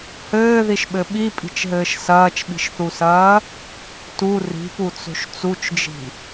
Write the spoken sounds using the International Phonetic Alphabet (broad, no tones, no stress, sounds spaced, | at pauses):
h ɘː ð i ʃ ɓ ɘ ɓ i pʼ i̤ t͡ʃ ɦ ɘː ʃ s ɐː t͡ʃ ɓ i̤ ʃ θ u s ɐː | t u r i̤ p u t͡s o̤ ʃ t͡s u t͡ʃ d͡ʒ i̤